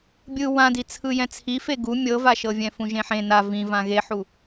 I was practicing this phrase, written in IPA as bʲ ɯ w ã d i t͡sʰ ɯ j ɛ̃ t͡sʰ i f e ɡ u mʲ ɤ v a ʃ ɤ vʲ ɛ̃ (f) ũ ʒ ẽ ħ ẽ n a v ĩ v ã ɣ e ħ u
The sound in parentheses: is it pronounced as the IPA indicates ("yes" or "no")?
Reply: yes